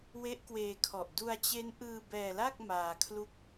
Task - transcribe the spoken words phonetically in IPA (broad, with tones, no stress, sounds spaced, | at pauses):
w e˦˥ ʔ k w eː˧ kʰ ɔ˨˩ ʔ d u˧ a̯ t͡ɕ e˦˥ n ʔ ɯː˧ b ɛː˧ l a˥˩ k̚ m aː˧ kʰ l u˥˩ k̚